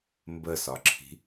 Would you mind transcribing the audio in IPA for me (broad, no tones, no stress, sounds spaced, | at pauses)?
m b ə s ɒ ǁʰ i̤